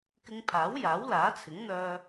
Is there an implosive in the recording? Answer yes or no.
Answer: no